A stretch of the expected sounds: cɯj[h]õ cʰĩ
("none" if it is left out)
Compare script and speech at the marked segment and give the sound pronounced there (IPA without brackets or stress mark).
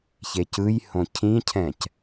h